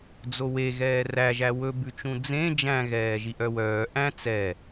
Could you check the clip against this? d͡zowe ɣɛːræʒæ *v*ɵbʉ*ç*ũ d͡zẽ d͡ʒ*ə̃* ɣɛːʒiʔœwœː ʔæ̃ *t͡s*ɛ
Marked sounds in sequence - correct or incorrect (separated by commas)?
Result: incorrect, incorrect, incorrect, correct